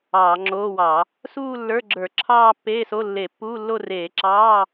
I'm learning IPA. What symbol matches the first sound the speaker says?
ɑː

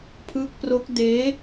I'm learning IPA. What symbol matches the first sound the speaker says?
pʰ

